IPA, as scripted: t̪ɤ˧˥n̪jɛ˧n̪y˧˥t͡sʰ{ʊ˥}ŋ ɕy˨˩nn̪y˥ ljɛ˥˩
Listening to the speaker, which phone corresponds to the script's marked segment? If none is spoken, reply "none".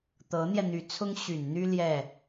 ʊ˥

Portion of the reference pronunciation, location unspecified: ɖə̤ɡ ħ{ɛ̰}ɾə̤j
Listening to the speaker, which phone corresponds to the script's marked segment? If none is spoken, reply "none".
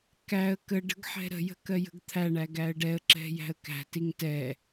ɛ̤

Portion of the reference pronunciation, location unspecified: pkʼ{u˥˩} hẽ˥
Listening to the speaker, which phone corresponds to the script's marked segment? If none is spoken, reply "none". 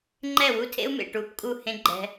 u˥˩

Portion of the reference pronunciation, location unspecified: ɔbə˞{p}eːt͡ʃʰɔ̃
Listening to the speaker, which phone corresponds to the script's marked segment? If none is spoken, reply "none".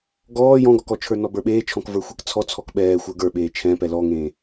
ɓ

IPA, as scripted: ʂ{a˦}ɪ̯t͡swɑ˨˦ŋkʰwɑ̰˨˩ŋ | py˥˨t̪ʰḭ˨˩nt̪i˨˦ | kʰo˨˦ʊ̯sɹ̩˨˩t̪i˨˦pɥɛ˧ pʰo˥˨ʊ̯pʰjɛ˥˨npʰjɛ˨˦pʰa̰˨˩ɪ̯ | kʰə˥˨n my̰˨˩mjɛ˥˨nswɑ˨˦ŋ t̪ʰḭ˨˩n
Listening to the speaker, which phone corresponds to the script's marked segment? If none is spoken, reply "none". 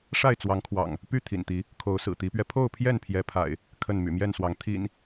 a˥˨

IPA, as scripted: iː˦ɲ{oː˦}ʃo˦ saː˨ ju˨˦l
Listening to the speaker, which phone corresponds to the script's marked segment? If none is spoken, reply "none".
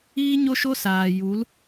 o˦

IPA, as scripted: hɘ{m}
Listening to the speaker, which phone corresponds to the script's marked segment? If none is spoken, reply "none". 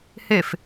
f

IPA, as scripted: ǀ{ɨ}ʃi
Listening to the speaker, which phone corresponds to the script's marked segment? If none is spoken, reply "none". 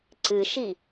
ɨ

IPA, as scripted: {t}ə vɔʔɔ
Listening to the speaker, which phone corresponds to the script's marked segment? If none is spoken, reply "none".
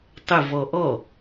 tˤ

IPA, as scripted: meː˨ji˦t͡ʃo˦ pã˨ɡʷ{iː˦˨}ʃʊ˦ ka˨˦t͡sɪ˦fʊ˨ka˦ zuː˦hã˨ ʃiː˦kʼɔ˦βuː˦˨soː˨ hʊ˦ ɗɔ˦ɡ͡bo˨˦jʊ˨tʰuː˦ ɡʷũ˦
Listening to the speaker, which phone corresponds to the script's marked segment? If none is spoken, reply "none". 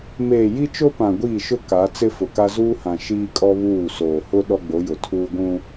iː˦˨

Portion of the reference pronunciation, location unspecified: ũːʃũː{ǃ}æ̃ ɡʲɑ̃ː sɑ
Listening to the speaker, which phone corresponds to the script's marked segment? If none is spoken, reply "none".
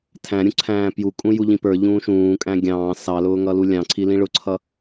kʼ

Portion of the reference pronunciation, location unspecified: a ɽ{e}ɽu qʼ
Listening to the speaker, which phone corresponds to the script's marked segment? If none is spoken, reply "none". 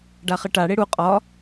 e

